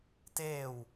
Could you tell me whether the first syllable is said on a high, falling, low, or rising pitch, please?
falling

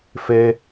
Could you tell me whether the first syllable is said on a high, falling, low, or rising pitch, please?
high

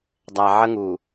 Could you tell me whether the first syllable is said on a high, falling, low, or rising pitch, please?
low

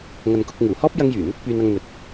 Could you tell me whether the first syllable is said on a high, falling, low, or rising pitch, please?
low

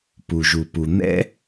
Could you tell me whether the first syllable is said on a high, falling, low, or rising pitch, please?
low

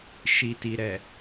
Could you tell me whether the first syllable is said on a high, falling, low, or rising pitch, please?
low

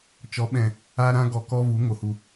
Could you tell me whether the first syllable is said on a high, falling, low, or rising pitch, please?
rising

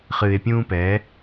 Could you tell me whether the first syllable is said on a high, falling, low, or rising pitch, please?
low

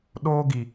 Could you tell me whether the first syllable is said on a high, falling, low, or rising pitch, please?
high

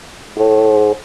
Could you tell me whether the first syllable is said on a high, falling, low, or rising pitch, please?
low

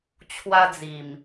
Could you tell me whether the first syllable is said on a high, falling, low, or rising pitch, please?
high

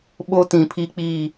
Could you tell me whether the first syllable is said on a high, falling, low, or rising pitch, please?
high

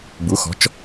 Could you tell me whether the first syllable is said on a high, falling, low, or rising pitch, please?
rising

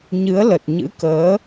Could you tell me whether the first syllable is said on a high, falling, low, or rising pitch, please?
rising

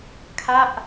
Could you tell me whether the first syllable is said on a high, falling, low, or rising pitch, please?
falling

